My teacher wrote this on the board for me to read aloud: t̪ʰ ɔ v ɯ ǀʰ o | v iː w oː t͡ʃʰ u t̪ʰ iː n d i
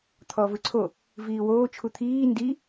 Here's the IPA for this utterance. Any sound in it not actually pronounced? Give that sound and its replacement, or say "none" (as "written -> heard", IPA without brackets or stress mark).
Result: none